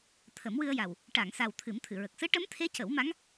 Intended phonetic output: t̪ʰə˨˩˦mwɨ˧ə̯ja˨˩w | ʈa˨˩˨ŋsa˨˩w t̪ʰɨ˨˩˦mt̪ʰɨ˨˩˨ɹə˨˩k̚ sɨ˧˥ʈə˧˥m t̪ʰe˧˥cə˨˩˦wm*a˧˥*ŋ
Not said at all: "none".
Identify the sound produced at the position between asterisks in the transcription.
a˧˥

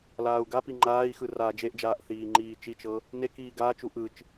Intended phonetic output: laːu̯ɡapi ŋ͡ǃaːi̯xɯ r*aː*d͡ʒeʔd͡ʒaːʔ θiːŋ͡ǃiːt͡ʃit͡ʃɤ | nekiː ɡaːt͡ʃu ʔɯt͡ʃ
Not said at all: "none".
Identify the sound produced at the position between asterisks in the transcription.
aː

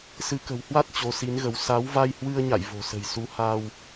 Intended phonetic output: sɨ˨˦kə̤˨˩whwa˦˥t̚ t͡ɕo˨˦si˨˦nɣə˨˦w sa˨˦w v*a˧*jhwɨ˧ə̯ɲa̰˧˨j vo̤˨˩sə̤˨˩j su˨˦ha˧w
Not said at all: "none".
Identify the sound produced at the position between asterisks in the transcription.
a˧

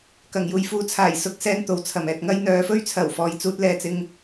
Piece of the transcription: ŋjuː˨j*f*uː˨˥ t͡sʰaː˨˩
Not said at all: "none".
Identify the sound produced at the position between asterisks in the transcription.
f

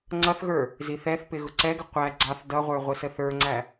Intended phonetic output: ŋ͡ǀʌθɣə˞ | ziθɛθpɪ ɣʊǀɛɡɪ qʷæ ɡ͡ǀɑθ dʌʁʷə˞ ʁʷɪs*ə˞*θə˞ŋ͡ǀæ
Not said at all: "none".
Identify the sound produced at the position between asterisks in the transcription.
ə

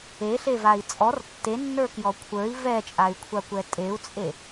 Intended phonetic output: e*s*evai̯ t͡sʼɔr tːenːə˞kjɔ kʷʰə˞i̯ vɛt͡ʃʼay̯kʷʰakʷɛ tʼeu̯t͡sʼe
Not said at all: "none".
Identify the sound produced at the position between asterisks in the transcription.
ɬ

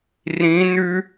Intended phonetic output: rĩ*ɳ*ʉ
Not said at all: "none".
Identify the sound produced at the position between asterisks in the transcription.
n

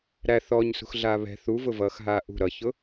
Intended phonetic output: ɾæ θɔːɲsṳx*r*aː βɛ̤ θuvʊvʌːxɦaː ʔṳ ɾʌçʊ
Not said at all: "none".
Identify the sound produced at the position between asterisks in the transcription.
ɮ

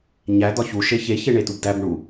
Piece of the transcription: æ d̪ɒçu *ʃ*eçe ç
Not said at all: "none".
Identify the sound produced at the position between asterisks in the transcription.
ʃ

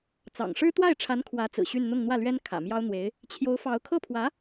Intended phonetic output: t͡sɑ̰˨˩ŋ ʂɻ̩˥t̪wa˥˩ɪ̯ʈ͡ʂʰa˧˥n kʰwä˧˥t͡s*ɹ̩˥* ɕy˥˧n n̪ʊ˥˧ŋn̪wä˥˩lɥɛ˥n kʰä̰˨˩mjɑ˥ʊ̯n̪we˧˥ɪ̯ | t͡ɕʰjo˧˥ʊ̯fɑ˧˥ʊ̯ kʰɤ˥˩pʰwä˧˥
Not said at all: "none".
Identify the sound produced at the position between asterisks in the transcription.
ɹ̩˨˩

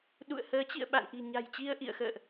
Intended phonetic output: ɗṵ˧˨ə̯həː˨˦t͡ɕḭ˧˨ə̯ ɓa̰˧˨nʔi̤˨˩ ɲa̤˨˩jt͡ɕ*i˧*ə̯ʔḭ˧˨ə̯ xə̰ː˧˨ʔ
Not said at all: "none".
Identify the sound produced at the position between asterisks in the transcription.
i˧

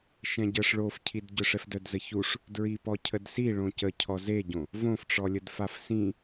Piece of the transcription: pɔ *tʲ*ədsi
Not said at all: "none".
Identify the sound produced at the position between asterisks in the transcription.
cʰ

